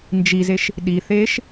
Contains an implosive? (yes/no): yes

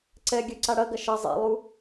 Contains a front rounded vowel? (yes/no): yes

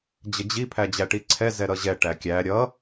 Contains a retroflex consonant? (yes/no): yes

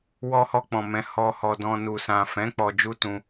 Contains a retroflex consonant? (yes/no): no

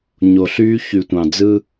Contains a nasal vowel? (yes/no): yes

